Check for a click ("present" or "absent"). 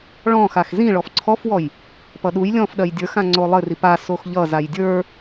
present